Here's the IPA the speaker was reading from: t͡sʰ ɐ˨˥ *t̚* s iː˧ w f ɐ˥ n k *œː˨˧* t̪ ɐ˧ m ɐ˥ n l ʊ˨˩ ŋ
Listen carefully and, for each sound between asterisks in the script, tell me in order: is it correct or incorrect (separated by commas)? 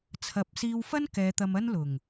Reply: incorrect, incorrect